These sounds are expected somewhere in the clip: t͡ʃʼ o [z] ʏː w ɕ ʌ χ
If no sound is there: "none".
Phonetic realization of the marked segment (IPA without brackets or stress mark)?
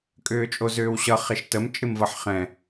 z